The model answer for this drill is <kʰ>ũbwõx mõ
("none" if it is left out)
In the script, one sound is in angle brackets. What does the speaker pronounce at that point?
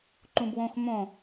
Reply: ǃ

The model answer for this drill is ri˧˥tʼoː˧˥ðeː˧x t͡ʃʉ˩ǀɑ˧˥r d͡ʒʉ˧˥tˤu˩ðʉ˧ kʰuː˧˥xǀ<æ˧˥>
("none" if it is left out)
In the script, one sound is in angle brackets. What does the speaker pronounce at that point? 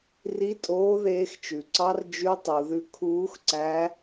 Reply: æ˧˥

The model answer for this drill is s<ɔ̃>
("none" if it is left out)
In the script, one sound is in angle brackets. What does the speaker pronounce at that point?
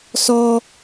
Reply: ɔ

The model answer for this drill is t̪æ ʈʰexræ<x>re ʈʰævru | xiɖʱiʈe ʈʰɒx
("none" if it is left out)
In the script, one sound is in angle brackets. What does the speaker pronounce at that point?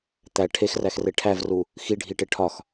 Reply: x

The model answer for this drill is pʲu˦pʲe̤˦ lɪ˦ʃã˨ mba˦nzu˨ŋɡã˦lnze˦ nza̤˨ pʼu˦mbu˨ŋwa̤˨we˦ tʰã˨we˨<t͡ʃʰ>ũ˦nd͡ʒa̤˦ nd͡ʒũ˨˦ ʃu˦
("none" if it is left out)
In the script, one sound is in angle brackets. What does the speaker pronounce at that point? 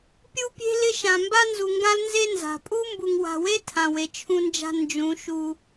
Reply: t͡ʃʰ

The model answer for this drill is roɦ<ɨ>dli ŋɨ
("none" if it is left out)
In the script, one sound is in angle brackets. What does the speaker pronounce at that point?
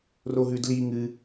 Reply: ʉ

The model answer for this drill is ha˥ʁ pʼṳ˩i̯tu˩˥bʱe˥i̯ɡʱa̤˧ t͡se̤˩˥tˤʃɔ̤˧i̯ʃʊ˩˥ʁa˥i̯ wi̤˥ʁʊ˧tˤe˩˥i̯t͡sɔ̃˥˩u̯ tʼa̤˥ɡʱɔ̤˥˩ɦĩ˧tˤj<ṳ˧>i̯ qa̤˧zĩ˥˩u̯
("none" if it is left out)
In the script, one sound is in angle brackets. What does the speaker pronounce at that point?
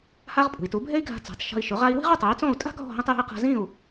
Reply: ṳ˧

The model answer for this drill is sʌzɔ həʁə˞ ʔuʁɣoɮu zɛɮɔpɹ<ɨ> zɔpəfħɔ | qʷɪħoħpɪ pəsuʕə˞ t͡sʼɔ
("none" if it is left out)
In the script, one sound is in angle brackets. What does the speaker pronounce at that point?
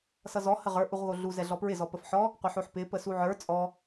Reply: ɪ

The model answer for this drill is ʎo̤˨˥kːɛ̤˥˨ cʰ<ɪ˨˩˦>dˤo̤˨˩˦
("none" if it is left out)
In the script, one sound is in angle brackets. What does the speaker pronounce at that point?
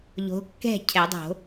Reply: ɛ˨˩˦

